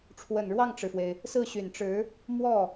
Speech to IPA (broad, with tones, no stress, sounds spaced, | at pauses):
ʈ͡ʂʰ w ə˨˩ n ɻ w ɑ˥˩ ŋ ʈ͡ʂ ɻ̩˩ f w e˩ ɪ̯ | s ɹ̩˥˩ ɕ y˨˩ n ʈ͡ʂ ɻ̩˧˥ | m w ɔ˥˩